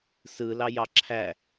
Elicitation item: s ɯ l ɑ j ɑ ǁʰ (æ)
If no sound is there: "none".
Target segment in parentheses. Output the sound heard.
æ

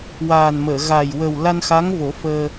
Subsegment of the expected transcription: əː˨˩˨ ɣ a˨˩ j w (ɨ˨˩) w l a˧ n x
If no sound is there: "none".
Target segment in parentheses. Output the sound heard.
ə˨˩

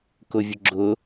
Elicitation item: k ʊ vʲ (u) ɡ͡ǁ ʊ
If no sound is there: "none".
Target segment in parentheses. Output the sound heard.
ʊ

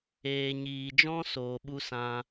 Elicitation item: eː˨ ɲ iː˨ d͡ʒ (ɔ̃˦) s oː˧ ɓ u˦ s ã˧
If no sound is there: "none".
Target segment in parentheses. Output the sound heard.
ɔ̃˦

